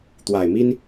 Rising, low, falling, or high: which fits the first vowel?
low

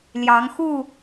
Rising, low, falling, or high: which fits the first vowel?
rising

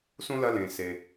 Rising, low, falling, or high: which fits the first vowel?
high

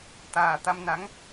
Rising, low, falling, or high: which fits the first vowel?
low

